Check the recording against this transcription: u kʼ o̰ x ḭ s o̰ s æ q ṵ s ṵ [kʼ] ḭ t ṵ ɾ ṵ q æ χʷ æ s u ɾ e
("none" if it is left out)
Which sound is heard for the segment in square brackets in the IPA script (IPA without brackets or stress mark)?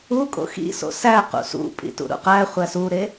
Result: pʼ